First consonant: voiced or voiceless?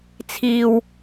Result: voiceless